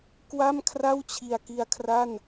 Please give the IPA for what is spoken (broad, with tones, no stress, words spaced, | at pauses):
kwa˥˩m kʰra˥˩wt͡ɕʰi˨˩a̯ki˧a̯kʰra˥˩n